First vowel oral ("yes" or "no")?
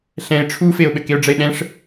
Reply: no